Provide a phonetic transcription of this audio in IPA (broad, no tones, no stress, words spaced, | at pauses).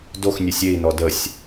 doxnʲesʲ ei̯nɔ dəsʲ